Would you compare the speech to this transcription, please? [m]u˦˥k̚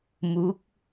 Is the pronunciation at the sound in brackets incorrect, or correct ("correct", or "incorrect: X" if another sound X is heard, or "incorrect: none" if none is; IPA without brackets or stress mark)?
correct